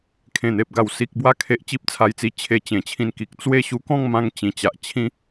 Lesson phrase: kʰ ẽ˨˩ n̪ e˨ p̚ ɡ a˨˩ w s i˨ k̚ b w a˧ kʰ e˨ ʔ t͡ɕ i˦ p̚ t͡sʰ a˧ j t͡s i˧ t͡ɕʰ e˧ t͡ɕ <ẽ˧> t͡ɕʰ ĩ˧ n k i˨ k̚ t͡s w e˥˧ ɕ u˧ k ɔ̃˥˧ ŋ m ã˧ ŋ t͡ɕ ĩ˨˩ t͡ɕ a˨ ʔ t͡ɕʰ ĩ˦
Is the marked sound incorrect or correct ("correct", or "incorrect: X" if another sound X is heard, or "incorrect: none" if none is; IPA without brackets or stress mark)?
incorrect: ẽ˨˩